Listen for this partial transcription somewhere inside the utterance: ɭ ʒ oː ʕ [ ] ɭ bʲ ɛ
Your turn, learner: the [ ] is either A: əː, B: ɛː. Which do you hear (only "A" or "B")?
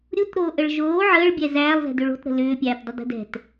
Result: A